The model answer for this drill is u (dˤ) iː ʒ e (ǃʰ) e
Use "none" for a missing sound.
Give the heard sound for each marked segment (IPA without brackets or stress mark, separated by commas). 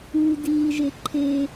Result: d, ǃʰ